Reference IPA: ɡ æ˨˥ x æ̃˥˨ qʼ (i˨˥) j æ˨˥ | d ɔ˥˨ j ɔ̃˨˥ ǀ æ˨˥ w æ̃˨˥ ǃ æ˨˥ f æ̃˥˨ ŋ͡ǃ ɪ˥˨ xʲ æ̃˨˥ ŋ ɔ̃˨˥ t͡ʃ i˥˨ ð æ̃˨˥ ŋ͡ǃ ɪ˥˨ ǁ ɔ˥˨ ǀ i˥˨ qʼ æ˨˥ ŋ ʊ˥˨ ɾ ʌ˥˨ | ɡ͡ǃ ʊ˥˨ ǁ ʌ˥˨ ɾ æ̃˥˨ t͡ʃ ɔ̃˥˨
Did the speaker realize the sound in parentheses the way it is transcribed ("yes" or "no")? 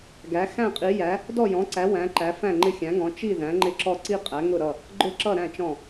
yes